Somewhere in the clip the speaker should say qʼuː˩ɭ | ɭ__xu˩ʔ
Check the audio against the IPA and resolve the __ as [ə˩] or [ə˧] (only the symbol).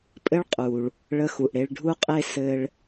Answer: ə˧